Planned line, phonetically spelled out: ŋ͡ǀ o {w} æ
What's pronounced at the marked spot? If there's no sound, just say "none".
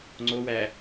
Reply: w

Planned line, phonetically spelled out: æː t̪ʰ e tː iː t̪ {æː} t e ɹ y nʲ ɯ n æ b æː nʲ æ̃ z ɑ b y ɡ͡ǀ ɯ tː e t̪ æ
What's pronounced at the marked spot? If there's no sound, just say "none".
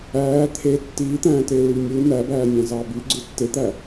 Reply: æ̃ː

